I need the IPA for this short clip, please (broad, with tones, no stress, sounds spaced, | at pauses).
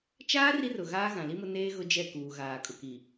t͡ʃ aː˦ r i˦ r ʊ˨ ɣ aː˦ ɣ ã˨ l i˦ m ʊ˦ n eː˦ ɣ ʊ˦ d͡ʒ ɛ˦˨ k uː˨ ɣ aː˨ kʼ ʊ˨ k i˨